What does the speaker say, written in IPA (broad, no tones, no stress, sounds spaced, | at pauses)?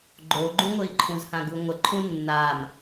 ɡ͡ǃ o ɡ͡ǃ ũ ŋʷ ɘ i̯ ǃʰ ũ z h ã ɡ u ŋʷ ə ǃʰ ũ nː a m